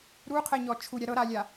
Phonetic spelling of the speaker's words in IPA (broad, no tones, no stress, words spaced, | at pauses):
ɾuqʰɛɲɔ t͡ʃʰuɾʲa ɾɤɾalʲa